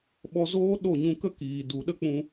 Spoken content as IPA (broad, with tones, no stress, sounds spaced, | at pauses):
ɓ ɔ˧ z oː˦ ɗ o˦˨ ɲ ũ˧ k ə˦ k iː˨ d u˨ ɗ ə˦ k͡p ũ˧